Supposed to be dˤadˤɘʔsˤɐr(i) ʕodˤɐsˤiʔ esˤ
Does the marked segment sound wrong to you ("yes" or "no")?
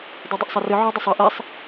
yes